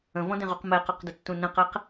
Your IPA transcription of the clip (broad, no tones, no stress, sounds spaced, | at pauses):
ə̃ v ɔ̃ d ẽ ʁ u q m ɛ q ɔ q d ə tː ũ n ə̃ q ɛ q